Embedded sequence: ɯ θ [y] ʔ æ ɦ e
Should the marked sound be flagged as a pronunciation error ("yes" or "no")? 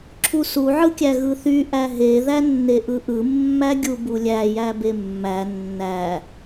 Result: no